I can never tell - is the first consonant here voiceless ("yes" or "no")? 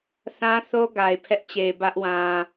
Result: yes